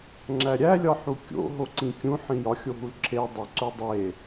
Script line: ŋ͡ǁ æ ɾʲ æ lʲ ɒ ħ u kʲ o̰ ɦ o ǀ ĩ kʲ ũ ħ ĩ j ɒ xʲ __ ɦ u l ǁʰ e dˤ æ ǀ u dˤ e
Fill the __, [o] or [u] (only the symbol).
o